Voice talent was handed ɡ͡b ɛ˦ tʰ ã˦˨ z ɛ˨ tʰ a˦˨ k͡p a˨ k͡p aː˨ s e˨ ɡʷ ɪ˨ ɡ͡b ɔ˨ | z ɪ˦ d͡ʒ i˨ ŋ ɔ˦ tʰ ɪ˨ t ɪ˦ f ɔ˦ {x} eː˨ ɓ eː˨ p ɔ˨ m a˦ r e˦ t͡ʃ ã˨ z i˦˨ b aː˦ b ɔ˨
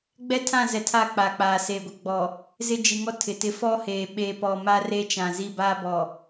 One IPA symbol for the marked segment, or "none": h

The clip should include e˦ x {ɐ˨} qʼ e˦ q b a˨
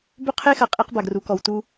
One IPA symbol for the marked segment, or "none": ɐ˨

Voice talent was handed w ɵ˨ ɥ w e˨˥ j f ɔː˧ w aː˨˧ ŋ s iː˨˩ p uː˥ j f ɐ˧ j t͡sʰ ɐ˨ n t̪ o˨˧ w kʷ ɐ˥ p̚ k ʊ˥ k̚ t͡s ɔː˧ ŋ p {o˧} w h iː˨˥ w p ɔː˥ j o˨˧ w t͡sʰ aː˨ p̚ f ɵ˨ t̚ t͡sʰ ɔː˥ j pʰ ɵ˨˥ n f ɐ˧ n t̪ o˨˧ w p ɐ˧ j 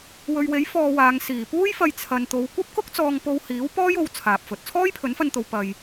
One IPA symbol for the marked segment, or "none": o˧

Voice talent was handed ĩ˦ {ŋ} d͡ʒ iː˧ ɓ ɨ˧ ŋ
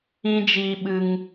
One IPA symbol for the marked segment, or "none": none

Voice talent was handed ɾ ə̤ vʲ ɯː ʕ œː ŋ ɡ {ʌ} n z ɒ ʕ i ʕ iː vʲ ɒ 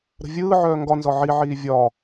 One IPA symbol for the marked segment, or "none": ɒ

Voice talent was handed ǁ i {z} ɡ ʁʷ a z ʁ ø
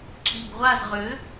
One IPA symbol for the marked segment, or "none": none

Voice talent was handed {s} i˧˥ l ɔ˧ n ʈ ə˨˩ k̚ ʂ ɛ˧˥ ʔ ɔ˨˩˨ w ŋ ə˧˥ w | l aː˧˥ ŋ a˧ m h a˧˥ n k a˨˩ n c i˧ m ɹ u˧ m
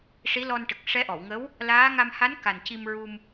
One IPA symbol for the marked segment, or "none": ʂ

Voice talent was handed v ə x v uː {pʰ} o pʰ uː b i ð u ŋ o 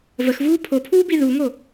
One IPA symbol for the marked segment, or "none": pʰ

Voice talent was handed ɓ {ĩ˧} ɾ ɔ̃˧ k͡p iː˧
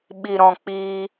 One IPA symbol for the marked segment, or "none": i˧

